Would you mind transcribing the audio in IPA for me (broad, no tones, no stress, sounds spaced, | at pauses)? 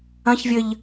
ɐ̃ ç vʲ ɘ ʎ